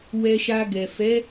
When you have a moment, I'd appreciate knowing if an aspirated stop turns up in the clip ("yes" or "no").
no